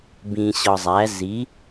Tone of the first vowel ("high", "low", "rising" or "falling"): low